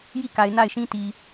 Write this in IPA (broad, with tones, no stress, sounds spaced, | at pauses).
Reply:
j i˦˨ k a˨ ɪ̯ n a˦˨ ɪ̯ ʃ ĩ˦ t i˨